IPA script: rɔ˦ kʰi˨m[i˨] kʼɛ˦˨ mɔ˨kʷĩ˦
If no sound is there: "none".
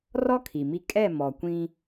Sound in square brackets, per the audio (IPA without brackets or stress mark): i˦